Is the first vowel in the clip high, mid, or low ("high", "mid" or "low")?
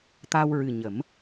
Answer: low